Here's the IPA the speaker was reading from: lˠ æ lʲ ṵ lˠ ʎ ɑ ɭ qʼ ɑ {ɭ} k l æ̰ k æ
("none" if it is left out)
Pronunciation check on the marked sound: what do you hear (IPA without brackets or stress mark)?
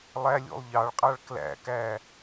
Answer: ɭ